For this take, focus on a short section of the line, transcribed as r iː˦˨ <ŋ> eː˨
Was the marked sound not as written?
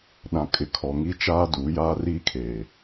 yes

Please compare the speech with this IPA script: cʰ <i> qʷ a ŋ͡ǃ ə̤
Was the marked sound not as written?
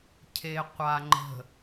yes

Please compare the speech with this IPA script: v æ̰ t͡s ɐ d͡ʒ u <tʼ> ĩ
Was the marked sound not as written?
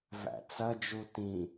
yes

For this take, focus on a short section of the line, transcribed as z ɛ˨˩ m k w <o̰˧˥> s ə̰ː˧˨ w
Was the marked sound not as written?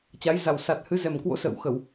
no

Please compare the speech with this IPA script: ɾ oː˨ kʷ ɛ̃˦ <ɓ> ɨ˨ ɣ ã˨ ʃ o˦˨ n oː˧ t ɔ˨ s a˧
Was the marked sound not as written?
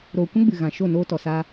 yes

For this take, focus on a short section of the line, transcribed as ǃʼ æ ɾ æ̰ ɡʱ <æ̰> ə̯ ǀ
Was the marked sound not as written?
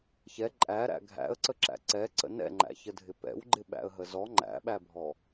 no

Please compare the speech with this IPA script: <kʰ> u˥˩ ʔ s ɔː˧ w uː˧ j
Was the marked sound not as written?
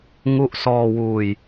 yes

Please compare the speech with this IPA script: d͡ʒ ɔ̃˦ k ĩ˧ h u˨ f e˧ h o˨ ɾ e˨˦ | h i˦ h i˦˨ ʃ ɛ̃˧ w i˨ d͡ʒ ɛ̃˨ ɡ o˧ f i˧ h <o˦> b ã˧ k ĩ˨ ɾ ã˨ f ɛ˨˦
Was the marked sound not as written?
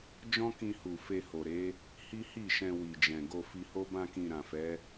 no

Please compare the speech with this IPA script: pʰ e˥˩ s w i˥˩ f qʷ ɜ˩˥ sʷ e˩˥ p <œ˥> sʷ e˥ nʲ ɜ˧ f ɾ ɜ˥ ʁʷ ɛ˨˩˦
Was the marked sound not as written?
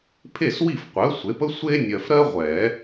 yes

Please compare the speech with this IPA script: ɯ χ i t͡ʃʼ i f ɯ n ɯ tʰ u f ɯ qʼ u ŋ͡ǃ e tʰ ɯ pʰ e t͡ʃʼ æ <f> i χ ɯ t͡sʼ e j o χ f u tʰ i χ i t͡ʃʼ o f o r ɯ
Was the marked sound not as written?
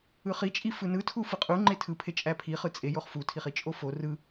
yes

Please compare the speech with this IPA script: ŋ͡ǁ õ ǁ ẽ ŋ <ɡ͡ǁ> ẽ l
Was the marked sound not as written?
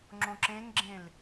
no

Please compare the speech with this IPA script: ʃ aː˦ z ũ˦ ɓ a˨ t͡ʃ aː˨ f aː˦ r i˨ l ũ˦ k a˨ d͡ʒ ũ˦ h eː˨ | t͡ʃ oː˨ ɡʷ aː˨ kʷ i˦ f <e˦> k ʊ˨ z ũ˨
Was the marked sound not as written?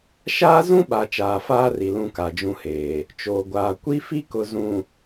yes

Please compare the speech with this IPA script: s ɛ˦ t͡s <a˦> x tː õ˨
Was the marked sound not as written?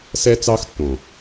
yes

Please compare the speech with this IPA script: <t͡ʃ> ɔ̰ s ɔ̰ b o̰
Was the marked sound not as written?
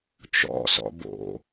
no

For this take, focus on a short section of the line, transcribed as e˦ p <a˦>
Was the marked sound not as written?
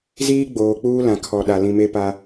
no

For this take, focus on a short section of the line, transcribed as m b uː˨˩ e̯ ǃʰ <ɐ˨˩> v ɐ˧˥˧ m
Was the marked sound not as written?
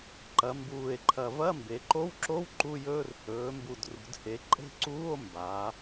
no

